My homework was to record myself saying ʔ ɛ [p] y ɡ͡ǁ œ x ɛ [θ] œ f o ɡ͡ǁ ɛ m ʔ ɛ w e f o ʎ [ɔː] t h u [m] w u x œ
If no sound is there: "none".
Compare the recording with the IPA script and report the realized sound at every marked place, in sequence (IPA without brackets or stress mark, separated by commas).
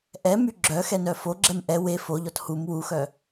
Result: m, n, ɔ, m